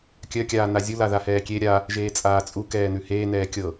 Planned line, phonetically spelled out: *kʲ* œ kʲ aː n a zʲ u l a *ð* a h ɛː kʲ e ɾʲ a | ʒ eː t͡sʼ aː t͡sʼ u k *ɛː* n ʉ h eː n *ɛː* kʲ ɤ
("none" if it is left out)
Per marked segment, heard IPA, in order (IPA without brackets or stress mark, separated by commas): kʲ, ð, ɛː, ɛː